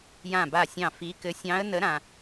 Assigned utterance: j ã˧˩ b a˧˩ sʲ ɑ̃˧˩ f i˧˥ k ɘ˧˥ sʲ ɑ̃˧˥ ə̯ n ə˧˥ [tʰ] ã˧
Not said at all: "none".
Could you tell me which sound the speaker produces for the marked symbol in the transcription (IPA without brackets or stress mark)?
ɾ